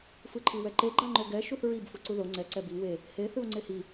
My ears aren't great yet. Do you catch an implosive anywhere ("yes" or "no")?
no